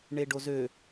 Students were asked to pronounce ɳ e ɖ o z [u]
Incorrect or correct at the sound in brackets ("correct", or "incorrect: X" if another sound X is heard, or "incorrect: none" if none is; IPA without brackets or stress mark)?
incorrect: ø